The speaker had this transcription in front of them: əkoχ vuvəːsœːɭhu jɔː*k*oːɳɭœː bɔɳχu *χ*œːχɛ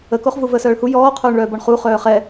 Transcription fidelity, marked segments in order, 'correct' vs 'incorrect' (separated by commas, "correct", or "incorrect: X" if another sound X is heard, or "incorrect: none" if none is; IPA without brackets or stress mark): incorrect: qʰ, correct